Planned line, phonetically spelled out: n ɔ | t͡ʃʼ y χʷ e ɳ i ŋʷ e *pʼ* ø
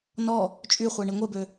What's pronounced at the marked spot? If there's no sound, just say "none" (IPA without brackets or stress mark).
b